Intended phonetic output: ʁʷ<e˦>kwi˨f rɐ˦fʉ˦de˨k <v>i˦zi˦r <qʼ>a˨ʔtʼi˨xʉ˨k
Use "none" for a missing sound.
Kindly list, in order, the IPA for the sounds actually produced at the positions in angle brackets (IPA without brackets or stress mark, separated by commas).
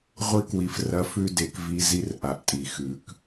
i˦, v, ʔ